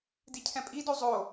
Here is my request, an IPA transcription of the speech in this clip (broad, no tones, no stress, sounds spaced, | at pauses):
d i cʰ ɛ̃ pʼ i d o zˤ o